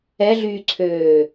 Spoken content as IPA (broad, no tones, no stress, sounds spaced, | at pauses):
ɛ ɮ yː ǀʰ øː